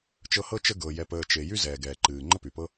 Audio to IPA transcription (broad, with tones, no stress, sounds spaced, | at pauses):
t͡ʃ ɤ˦ h ɤ˥ t͡ʃ ə˥ ɡ ɤ˨ j ɛ˨ p əː˨ t͡ʃ e˨ j y˥ z ɛː˩ ɡ ɛː˩ ǃ ɨː˩ ŋ͡ǃ ə˥ p y˩ p ɤ˥